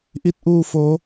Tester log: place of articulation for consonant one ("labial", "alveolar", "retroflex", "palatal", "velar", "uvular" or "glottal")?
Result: glottal